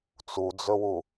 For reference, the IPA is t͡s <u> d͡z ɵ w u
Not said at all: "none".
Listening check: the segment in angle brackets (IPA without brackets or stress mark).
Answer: u